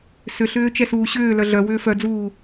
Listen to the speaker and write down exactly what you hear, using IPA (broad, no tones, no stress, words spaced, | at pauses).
sʏɬʏː t͡ʃɛsuːɕʏːlœ ɮœ wʏːfœd͡zuː